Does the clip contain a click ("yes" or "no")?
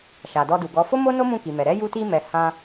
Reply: no